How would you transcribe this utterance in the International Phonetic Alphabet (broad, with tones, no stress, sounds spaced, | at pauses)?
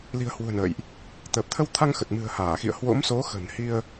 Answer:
l i̤˨˩ ə̯ h w ṳ˨˩ ə̯ n ə̰ː˧˨ j ʔ | t̪ əː˨˩ p̚ t̪ʰ ə˧ w t̪ʰ a˧ ŋ x ə˨˩ t̚ m ɨ̤˨˩ ə̯ h aː˧˩ x ḭ˧˨ ə̯ h w o̰˧˥ m s o˨˦ x ə̤˨˩ n h i˧ ə̯